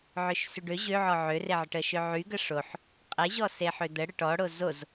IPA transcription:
ʕ ø ʃ s y ɖ ø ʑ ø ʕ ɔ ʕ ø r e ʕ ə ʈ ə ʃ ø ʕ y ɡ ə ʂ o ħ | qʼ e ʑ ɔ s e ħ ø d̪ ə ɽ ə ʈ ɔ ɽ o z o z

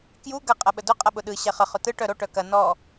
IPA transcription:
k j u ɡ ɐ qʼ ɐ ɓ ə d ʊ qʼ ɐ ɓ ʊ ɗ ɯ ɕ ɛ χ ə χ ʊ t ɯ ʈ œ ɾ o ʈ œ k ɐ n ɔ

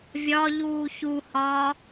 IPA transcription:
vʲ ɒ ʎ uː ç u h ɒː

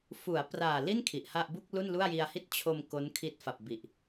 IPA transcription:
f u˩˦ a̯ p r aː˨˩ l i˥˩ n kʰ i˨˩ ʔ h a˥˩ ʔ b u˥˩ k̚ l u˥˩ n l u˥˩ a̯ j i˧ a̯ h i˥˩ t̚ t͡ɕʰ o˧ m k o˦˥ n kʰ i˦˥ t̚ f a˨˩ p̚ b i˨˩ ʔ

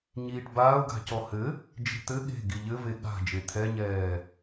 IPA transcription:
ɲ iː ʈ b aː ʊ̯ ɡ a̤ c ɔ h ɘ | d͡ʒ e̤ t̪ ɘ ɠ e̤ ɡ i ʎ ɘ v e ɠ a̤ d͡ʒ e t̪ʰ ɛ ɲ ɛː

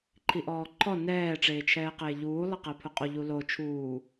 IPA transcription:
ǃʰ i ʔ ɔː ǃʰ ɔ n ɛː ʈ͡ʂ eː t͡ʃʰ ɛː q eː ʎ uː lˠ ɪ q ɛ pʰ ʊ qʼ o ʎ u l o t͡ʃʰ uː

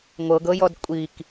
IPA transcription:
ŋʷ ɤ ɡ ɤ j ɔ d kʷʼ i k

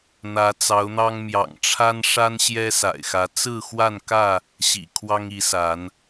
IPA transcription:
n̪ ä˨˦ t͡s ɑ˨˦ ʊ̯ n̪ ɑ˦ ŋ m j ɑ̰˨˩ ŋ ʈ͡ʂʰ a˦ n ʂ a˦ n ɕ j ɛ˦ s a̰˨˩ ɪ̯ x ä˨˦ t͡s ɹ̩˥˨ x w a˥˨ n k ä˥˨ | ɕ ḭ˨˩ kʰ w ɑ˦ ŋ i˨˦ s a˨˦ n

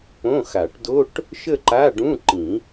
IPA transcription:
p õ˧˥˧ x a˨˩˦ ʈ d o˧˥˧ ʈ | ʃ ə˥˧ ǃ a˧˥˧ ɖ ũ˧˥˧ ǃ ĩ˨˩˦

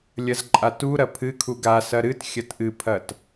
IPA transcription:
lʲ ɐ z ǃʼ a t u ɾ ɐ pʰ ɨ kʰ u ɡ a s ɐ ɾ ɨ t xʲ ɐ t ʔ ɨ pʰ ɐ t

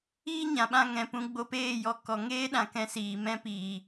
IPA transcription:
iː˦ ɲ ã˨ ɓ ã˧ ŋ ɛ̃˨ p ũ˧ ɡ͡b o˧ p eː˦˨ j ɔ˧ k ɔ˨ ŋ eː˦ ɗ ã˨ k ɛ̃˧ s iː˨ m ɛ̃˦ p iː˨

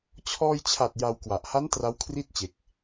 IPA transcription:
t͡ɕʰ ɔː˧ j t͡ɕʰ a˨˩ t̚ j a˧ w k w a˨˩ ʔ h a˦˥ n t r a˦˥ w kʰ r i˥˩ t̚ t͡ɕ e˨˩ k̚

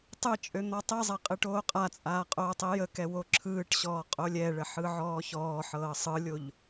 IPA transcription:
tˤ ɯ t͡ʃʼ ø n̪ ɔ tˤ i zˤ ɛ qʼ ɯ ʈ oː qʼ a t͡sʼ aː qʼ oː tˤ i j ə k ɛ w o ǁʰ ɯː ʈ ɕ ɔː qʼ o lʲ ɛ ɭ ə ħ ɯ ʕ ɔː ç ɔː ħ ɤː sˤ ɯ lʲ o ʎ

